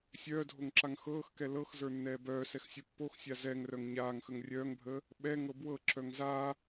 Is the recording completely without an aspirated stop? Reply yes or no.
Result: yes